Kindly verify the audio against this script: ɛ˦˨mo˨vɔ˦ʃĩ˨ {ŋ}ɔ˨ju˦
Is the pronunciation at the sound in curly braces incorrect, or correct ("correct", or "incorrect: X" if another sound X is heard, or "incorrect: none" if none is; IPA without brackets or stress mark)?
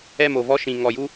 correct